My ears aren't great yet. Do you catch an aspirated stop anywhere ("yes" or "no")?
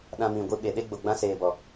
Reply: no